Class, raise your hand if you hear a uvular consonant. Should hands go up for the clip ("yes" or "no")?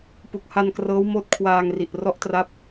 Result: no